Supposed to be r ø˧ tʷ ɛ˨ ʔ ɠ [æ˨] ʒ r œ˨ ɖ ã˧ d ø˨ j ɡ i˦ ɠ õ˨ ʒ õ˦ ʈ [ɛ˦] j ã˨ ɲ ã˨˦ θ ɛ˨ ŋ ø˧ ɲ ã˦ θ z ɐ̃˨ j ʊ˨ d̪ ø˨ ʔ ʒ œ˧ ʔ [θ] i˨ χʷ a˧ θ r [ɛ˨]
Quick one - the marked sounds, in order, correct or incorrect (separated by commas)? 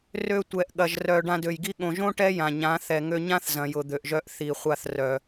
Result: incorrect, correct, correct, incorrect